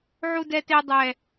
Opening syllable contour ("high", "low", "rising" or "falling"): high